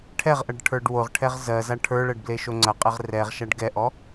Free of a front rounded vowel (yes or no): yes